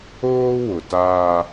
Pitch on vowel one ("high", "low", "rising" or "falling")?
high